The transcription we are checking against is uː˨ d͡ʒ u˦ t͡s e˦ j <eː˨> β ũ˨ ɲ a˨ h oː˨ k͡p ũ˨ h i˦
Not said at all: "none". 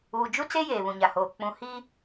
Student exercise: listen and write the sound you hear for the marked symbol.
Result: eː˨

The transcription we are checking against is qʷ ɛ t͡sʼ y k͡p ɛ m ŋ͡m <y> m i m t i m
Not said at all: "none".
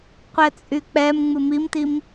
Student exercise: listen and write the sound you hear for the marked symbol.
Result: ɨ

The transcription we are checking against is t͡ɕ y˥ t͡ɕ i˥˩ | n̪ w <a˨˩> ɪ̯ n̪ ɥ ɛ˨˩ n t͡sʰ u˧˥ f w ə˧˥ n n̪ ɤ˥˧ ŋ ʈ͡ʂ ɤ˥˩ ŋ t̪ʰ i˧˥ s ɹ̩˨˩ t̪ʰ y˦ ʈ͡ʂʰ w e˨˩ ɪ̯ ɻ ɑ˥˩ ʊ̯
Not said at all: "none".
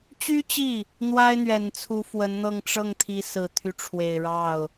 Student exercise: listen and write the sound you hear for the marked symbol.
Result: a˥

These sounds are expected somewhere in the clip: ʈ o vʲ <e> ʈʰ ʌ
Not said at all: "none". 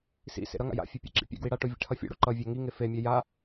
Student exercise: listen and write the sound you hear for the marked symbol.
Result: ḛ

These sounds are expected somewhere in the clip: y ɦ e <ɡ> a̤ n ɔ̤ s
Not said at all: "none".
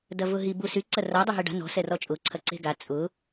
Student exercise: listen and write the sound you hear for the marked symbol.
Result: ɖ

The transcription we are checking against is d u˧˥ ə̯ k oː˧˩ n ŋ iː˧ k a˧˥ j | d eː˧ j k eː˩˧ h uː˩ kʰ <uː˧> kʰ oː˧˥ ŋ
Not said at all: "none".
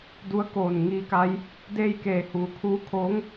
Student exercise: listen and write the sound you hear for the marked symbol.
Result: uː˧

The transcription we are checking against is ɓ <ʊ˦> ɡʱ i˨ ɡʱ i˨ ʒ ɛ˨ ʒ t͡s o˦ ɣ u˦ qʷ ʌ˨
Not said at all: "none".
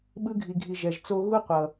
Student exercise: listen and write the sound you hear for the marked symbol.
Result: ɯ˦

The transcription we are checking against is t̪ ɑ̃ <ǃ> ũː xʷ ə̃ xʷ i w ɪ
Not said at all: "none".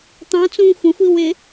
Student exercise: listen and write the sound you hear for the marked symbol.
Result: t͡s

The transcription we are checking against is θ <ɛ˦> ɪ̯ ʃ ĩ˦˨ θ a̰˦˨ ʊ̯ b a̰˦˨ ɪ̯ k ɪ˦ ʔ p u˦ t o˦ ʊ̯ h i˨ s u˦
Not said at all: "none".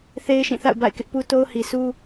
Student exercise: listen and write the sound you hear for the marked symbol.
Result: e˦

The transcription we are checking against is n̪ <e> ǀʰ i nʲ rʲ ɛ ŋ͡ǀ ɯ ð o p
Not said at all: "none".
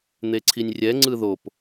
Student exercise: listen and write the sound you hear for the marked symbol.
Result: e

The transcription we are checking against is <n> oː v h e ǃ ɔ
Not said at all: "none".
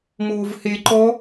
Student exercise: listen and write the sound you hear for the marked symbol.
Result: m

